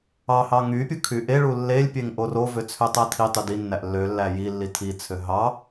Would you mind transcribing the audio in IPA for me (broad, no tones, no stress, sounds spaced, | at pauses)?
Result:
ɑ h ɑ ŋ y pʲ ɯ kʰ y ʔ e ɭ u lː e lʲ pʲ e ŋ ʔ o r o v ø t͡sʰ ø tˤ æ tʰ i tˤ y d i nː æ ʔ lː ø lː æ j i lː i tʰ i t͡sʰ ø ɦ ɑ